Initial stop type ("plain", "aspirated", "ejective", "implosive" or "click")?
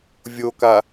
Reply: plain